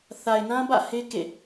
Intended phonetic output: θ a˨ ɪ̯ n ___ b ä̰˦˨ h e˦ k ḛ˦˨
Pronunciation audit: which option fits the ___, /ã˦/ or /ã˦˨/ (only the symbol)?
ã˦